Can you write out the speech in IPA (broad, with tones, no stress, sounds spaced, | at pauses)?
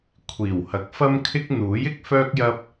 kʷʰ iː˨˩ w h ɐ˨˥ k̚ f ɐ˥ m kʰ ɪ˥ k̚ n̪ uː˨˥ j ɪ˨˥ k̚ f œː˥ k̚ j ɐ˥ p̚